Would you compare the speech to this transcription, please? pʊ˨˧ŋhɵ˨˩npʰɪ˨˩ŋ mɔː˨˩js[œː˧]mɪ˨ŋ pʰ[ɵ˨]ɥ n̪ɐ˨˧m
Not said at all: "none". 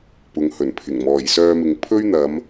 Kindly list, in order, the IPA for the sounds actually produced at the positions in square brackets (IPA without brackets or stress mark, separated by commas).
œː˧, ɵ˥